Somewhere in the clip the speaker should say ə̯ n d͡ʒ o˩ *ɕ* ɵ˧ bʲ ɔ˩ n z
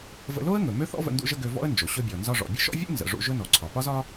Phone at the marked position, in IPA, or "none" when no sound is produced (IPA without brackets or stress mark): ɕ